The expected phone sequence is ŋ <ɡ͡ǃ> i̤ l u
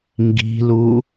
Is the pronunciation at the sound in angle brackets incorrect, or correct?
incorrect: ɡ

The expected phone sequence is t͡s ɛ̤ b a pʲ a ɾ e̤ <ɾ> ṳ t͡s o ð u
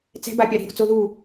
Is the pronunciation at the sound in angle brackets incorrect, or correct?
correct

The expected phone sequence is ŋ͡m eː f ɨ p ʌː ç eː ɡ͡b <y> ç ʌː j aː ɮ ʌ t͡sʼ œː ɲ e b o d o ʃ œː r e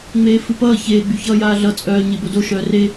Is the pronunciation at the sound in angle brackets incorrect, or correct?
correct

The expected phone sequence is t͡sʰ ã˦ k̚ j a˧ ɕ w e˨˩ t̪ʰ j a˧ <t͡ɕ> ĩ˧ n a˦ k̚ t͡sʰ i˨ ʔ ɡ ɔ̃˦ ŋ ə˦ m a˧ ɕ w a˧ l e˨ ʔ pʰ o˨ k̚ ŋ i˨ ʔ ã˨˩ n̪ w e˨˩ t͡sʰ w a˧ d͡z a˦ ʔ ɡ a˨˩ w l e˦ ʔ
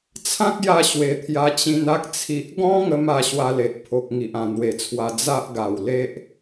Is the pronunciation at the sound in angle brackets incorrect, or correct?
correct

